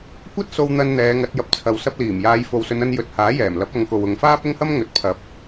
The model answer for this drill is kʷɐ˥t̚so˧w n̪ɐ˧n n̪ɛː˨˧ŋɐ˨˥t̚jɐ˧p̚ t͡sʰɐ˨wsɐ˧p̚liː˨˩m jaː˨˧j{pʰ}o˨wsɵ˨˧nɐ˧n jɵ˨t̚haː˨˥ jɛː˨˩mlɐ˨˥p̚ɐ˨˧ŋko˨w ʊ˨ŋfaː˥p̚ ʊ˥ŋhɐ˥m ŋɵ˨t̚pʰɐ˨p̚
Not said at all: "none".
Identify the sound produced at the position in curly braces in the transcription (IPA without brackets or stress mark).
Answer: f